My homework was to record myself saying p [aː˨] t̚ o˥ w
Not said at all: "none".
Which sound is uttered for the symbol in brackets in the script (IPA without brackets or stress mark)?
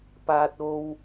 aː˥